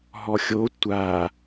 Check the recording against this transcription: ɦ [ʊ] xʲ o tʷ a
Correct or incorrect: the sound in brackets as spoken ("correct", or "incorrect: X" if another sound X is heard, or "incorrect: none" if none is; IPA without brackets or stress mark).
incorrect: ɔ